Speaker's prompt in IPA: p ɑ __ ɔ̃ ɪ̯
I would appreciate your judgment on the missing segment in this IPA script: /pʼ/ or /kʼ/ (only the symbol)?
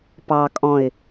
kʼ